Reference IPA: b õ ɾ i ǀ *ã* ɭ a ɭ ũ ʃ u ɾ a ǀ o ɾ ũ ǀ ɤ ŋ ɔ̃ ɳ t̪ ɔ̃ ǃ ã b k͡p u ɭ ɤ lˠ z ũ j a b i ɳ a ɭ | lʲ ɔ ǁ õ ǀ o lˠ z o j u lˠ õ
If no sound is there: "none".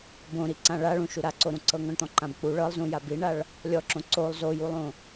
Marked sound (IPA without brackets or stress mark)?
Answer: ã